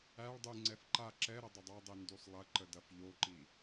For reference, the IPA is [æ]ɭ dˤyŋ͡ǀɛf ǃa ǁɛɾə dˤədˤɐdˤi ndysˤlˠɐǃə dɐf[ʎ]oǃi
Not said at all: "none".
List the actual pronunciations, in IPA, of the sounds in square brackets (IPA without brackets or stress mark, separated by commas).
æ, ʎ